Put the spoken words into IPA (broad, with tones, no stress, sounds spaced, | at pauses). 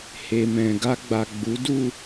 h e˨ m ɛ̃˨ ɡ a˧ ɡ͡b a˨ ɡ͡b u˨˦ d u˦˨